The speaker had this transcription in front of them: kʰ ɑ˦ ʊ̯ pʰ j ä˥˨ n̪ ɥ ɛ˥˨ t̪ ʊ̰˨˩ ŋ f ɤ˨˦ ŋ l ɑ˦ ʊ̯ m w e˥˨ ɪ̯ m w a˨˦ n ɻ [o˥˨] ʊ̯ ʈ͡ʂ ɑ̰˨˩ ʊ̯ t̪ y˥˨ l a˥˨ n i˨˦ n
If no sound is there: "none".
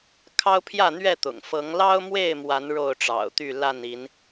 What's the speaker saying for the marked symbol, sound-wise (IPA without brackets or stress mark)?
o˥˨